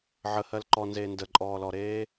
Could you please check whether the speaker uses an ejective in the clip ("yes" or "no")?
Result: yes